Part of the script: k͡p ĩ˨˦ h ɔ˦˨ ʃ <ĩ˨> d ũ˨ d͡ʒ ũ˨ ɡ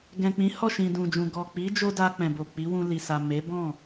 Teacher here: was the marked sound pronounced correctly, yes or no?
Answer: yes